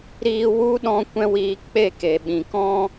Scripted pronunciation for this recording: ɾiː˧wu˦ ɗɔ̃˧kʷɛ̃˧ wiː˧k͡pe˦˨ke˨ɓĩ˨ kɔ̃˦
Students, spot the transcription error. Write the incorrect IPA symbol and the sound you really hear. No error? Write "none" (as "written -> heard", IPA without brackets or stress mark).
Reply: none